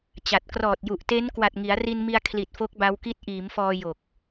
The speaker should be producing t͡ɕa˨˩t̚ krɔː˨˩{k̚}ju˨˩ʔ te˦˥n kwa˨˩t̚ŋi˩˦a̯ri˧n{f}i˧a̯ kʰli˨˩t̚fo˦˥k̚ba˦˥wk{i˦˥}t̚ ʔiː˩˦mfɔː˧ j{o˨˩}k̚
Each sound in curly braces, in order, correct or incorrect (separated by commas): incorrect, incorrect, correct, correct